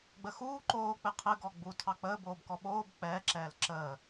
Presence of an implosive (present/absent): present